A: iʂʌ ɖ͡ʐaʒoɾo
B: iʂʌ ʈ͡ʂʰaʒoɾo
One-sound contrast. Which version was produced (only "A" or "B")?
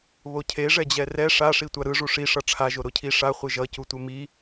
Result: B